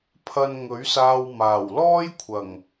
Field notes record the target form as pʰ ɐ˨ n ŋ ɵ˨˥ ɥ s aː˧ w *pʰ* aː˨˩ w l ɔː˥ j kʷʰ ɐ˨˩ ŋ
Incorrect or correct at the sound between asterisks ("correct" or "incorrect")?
incorrect